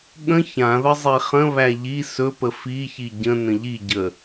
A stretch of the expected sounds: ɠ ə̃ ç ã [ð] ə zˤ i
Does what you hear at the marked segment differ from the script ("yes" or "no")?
no